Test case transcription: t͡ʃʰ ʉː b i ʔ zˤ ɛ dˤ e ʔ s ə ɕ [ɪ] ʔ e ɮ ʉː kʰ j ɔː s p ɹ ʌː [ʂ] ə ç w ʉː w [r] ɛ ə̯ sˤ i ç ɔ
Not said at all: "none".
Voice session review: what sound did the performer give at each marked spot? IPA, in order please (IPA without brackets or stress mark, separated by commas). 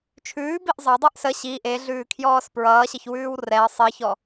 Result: i, ɕ, r